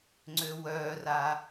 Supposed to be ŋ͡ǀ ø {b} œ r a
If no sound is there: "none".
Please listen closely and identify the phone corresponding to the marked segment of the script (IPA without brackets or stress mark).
w